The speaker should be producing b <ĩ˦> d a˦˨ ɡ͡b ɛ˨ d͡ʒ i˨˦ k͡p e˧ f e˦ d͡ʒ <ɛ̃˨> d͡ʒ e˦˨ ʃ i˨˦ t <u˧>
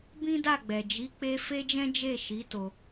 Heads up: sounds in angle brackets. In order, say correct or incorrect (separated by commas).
correct, incorrect, incorrect